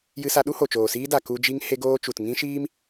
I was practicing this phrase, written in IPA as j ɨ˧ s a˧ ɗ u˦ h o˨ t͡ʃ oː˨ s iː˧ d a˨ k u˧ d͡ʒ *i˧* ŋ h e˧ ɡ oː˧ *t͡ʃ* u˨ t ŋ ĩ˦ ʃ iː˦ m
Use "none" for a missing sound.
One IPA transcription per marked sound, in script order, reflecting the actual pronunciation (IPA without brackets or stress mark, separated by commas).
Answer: i˧, t͡ʃ